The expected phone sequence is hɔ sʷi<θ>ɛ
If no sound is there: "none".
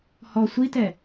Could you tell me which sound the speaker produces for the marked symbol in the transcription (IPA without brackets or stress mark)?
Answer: t